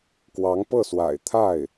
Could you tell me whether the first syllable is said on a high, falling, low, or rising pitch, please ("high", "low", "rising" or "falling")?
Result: rising